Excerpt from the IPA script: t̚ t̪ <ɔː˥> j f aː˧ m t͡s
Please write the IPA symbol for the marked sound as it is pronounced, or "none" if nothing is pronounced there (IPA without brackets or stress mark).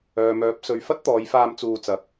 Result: ɔː˨˧